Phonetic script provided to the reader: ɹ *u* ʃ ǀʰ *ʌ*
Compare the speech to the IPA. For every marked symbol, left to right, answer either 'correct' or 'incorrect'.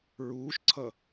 incorrect: uː, correct

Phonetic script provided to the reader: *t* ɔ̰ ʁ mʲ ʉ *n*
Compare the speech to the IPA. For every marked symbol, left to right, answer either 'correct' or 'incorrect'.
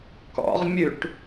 incorrect: k, incorrect: ʈ

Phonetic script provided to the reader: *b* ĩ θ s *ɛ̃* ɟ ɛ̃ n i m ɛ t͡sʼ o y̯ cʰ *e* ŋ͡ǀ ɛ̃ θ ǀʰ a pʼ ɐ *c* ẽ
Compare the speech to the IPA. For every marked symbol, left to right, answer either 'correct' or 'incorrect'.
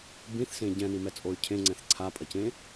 correct, incorrect: ẽ, incorrect: ẽ, correct

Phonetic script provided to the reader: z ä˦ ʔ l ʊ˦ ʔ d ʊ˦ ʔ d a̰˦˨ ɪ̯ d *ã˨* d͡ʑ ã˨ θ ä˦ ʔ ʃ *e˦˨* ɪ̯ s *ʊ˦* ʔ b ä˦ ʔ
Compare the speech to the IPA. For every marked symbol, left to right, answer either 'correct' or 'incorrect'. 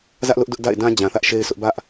incorrect: ã˦, incorrect: e˦, correct

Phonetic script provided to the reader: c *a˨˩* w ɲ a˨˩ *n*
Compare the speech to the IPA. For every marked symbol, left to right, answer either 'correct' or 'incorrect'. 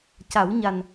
incorrect: a˨˩˦, correct

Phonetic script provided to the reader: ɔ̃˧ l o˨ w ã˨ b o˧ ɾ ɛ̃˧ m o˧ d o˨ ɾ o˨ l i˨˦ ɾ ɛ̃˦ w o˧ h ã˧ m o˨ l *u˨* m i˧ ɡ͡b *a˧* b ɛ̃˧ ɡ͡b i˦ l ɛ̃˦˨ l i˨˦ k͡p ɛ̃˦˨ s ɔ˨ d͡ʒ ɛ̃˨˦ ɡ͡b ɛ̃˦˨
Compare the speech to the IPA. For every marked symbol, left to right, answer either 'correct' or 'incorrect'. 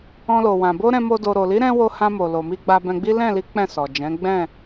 incorrect: o˨, correct

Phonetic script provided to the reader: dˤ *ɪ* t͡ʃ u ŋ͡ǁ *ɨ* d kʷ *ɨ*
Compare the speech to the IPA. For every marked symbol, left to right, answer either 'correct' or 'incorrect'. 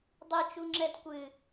incorrect: ɨ, incorrect: ɛ, correct

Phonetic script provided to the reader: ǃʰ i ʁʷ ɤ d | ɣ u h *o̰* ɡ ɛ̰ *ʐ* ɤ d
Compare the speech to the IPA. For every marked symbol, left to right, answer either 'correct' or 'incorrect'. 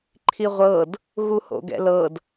correct, incorrect: l

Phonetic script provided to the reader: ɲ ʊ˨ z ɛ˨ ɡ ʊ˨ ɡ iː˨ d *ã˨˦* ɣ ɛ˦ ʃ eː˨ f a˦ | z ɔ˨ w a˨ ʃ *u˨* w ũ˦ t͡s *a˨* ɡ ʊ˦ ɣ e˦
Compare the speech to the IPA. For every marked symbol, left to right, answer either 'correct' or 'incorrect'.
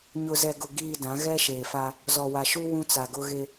correct, incorrect: u˦, correct

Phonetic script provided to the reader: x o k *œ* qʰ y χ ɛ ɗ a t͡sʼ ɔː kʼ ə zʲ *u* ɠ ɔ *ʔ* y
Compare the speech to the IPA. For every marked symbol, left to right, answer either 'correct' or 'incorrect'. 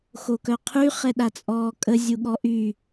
correct, correct, correct

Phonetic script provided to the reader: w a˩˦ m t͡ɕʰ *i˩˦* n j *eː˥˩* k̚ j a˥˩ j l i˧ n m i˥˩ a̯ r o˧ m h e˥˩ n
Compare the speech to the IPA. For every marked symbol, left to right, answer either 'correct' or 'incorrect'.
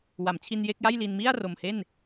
incorrect: i˧, incorrect: e˥˩

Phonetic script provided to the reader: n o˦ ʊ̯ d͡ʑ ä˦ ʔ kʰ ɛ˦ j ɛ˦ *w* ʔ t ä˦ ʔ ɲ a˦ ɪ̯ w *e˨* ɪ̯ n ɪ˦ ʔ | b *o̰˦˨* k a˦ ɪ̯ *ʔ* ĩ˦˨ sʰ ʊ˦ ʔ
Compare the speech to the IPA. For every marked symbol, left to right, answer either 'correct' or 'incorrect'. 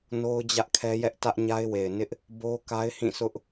incorrect: none, correct, incorrect: o˦, incorrect: h

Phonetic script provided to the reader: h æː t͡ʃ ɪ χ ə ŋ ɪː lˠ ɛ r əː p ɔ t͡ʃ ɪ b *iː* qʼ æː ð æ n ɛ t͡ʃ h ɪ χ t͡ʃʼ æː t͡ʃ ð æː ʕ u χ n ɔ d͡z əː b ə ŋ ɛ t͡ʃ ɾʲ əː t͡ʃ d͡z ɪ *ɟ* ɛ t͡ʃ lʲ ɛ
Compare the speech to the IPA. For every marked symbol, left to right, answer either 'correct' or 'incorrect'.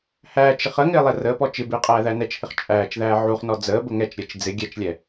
incorrect: ɪː, incorrect: ɡʲ

